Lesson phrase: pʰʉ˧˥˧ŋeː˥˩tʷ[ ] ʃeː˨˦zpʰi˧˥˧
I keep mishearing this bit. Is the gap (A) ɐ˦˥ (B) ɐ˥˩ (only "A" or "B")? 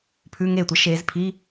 A